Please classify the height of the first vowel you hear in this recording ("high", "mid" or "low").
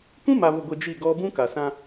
high